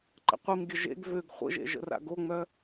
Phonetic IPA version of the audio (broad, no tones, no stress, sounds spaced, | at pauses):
ǃ ə̰ qʷ i m ɡʲ ə ʒ ḛ ɡ v ø ɡ χʷ ə̰ ʒ ḛ ʒ ə̰ r a̰ ɡ o ŋ͡m œ